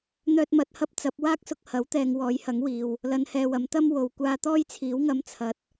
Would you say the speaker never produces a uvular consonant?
yes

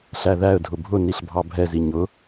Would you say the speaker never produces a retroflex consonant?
yes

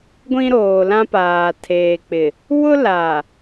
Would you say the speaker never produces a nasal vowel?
no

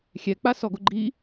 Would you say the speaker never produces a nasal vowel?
yes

